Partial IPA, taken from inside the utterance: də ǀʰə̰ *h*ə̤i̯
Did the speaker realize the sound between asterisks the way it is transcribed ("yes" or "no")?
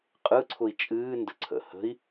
yes